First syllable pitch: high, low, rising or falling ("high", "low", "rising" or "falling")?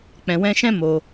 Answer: low